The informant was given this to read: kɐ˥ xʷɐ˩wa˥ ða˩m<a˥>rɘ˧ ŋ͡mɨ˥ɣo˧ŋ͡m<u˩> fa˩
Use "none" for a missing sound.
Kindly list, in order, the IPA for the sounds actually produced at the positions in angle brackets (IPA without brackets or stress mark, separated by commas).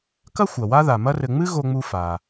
ɐ˥, u˧